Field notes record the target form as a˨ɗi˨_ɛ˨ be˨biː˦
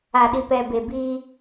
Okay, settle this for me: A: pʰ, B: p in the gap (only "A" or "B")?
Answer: B